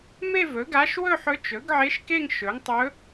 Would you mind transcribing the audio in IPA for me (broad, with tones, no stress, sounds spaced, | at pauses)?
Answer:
m e˥˧ v ɵ˩˥ ɡ a˧˥ ʃ w ɵ˥˧ ħ ɵ˧˥ t͡ʃ ɵ˩˥ ɡ ʕ e˧˥ ʃ k e˥˧ ŋ ʃ ɵ˩˥ ŋ tˤ ɵ˧˥